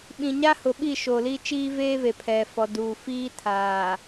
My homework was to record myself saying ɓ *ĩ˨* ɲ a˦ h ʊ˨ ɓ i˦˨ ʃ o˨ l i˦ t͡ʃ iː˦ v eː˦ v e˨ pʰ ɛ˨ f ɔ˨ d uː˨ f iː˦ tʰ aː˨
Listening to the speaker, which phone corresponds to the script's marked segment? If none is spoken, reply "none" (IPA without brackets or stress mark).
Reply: ĩ˨